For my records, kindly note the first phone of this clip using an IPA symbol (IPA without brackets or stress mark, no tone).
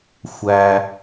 xʷ